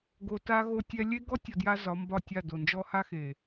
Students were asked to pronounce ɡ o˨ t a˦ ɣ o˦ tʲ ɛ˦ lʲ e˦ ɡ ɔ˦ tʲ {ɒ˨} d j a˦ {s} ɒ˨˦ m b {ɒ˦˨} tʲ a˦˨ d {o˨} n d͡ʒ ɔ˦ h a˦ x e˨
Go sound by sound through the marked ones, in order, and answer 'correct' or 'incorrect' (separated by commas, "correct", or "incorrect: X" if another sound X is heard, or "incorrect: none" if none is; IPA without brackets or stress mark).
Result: correct, incorrect: z, correct, correct